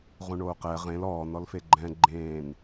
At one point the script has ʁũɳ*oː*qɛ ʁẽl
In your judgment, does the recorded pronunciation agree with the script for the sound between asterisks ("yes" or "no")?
yes